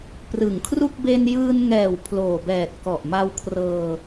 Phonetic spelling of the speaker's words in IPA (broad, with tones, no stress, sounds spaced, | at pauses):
p r ɯ˨˩ ŋ kʰ r u˥˩ k̚ b e˧ n j ɯː˧ n ŋ ɛː˨˩ w pʰ l oː˨˩ b ɛː˨˩ t̚ k ɔ˨˩ ʔ m a˧ w kʰ r ɤː˧